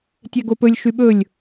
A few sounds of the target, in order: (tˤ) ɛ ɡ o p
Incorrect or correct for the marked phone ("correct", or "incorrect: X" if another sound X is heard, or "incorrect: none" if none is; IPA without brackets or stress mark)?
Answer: incorrect: tʲ